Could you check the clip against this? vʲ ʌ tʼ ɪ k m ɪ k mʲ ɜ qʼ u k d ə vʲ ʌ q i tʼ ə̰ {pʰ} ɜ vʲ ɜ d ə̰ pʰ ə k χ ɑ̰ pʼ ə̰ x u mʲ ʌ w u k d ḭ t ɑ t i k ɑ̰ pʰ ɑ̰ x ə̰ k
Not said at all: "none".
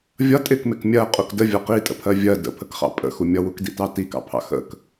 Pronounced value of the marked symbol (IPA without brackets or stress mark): pʰ